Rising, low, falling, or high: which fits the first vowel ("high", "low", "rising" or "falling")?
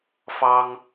high